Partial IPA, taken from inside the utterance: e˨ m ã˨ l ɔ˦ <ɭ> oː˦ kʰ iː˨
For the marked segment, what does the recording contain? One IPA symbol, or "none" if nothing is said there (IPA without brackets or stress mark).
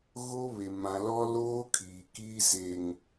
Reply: l